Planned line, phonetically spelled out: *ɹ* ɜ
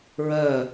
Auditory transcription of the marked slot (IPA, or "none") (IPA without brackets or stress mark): ɹ